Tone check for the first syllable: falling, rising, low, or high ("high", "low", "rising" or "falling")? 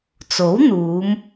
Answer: rising